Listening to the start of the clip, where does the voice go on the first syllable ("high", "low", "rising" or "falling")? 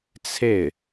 falling